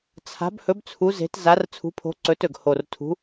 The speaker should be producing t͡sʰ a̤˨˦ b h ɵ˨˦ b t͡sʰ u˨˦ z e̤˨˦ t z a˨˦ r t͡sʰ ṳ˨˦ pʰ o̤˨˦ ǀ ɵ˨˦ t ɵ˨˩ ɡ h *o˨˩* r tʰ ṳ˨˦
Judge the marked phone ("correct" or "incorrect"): correct